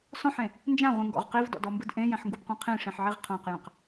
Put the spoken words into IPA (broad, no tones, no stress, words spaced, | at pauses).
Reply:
sɔ̃ħẽ | nd͡ʒãʁʷĩŋɡɔ̰ʁ qivdɔ̰dɔmbɯd ʔẽjɛ̃ħŋɡubqʷɛ̃ qʰĩʂĩħʕiʁ qʰãqjɛ̃q